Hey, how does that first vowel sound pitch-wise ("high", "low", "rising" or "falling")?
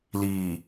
low